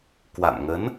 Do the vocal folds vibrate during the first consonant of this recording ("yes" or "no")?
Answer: no